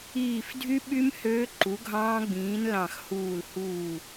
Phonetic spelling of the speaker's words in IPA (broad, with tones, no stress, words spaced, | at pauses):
iː˧˩fdʱy˦˥ ɓy˦˥m høː˦˥ǃu˨˥ɡʱɑ̃ː˦˥ ɡ͡bĩː˨˥nlɑ̃˧˩xhuː˧˩l huː˧˩